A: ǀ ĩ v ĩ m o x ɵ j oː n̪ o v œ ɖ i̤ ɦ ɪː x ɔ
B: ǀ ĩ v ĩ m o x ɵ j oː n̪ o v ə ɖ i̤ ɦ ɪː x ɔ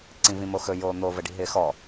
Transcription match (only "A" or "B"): B